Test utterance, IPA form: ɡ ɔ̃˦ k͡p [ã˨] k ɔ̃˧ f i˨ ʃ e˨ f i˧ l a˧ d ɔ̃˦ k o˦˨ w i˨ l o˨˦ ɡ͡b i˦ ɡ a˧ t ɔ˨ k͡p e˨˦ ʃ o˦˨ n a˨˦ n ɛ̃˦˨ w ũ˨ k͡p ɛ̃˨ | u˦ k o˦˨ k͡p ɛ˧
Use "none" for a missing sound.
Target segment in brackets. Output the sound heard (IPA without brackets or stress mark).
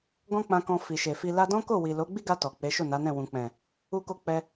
ã˧